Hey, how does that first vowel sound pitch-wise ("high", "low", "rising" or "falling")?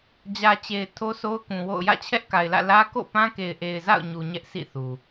low